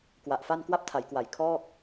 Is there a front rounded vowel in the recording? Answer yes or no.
no